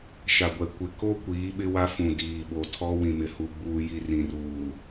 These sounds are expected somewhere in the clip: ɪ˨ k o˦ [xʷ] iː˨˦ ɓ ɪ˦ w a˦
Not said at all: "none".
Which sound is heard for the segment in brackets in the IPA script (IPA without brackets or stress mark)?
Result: kʷ